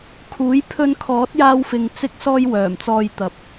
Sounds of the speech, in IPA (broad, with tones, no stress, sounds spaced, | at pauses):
kʰ uː˨˥ j pʰ ɵ˧ n kʰ ɔː˨˥ t̚ j aː˧ w f ɪ˨ ŋ t͡s ɪ˧ k̚ s ɔː˧ j w œː˨˩ m t͡s ɔː˧ j t̪ ɐ˨ p̚